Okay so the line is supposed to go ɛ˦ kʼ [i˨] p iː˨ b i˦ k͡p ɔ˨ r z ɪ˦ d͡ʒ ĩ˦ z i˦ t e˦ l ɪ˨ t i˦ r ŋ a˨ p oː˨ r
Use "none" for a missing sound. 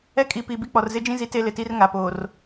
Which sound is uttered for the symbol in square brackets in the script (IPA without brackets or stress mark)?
i˨